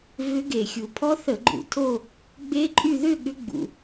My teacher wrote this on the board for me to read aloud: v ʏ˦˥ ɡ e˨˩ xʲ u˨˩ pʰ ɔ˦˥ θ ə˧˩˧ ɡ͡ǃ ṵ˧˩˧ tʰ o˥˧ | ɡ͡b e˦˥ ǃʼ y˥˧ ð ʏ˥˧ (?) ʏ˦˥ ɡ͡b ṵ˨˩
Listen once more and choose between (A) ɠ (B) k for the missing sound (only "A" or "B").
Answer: A